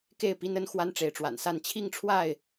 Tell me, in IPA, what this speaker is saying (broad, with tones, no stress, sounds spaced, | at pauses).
k e˥˨ ɪ̯ p i˦ n ə˦ n x w a˦ n ʈ͡ʂ e˨˦ ɪ̯ ʈ͡ʂ w a̰˨˩ n s a˥˨ n t͡ɕʰ i˥˨ ŋ ʈ͡ʂʰ w a˥˨ ɪ̯